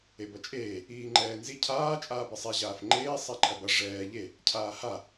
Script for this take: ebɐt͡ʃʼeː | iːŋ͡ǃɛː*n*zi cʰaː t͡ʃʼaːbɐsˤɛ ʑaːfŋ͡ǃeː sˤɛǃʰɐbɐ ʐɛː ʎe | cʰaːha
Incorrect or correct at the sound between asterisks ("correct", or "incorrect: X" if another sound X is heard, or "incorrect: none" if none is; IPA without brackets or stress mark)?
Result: correct